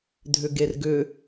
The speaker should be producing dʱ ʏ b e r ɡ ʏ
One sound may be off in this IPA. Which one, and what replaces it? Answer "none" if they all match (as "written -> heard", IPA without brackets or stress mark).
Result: b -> ɡ